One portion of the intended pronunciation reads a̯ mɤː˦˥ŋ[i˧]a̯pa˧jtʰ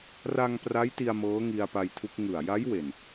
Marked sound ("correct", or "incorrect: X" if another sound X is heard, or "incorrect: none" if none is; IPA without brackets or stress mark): correct